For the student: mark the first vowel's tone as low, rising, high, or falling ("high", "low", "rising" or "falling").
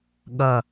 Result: low